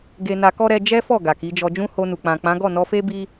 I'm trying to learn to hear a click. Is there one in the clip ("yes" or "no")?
no